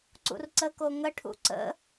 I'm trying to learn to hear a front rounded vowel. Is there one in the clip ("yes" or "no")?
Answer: no